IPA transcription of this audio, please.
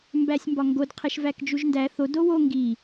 m b æ sʲ m b ɒ ŋ ɡ o d qʰ e ʃ v æ k d͡ʒ u ʒ n d æ θ o d o w o ŋ ɡ i

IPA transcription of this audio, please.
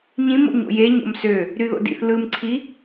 ɲ ĩ m o̰ ɲ o̰ j e ɲ o̰ m s ø | ɾ y ð o̰ d ḭ θ l ɯ m ǀʰ i

